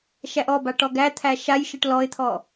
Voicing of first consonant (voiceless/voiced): voiceless